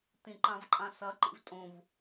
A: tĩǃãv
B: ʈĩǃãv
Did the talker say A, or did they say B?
A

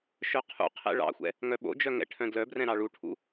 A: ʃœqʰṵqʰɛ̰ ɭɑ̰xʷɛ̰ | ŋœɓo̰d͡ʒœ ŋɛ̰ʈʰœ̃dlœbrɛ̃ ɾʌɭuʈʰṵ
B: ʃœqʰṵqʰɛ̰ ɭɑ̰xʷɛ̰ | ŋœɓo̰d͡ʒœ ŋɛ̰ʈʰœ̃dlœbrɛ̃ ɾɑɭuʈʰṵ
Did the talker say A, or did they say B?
B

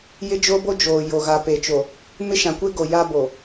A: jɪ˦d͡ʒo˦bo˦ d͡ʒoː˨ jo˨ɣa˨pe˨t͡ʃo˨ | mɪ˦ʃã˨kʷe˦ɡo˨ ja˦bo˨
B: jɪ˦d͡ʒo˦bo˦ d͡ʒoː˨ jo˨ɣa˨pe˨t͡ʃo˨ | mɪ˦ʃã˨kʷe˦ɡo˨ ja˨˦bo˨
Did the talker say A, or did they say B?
A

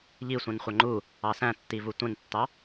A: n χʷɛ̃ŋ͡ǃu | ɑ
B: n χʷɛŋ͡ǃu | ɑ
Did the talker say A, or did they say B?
B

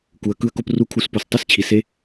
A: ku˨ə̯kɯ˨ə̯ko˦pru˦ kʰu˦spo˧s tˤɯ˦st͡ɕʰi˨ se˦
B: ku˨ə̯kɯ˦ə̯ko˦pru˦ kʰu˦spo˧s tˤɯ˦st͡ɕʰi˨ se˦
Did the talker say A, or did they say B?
B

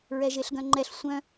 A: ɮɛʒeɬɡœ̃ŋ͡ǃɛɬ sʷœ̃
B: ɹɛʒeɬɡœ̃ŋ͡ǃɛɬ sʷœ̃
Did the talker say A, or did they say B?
B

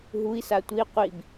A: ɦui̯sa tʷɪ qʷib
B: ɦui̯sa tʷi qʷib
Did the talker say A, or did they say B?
B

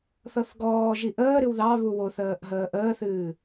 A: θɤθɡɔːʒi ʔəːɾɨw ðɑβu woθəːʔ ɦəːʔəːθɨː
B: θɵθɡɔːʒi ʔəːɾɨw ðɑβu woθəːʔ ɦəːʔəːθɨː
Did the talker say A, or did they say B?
A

